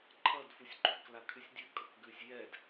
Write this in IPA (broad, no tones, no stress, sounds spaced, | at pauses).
ǃʰ ʌ d f u sʲ ɡ͡ǃ ʉ k l a kʰ ʉ sʲ dʲ ʉ kʼ ʌ k ɡ ʉ sʲ j ɛ d